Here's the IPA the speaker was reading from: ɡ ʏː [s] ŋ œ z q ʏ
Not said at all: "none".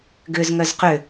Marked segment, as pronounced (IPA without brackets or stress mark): z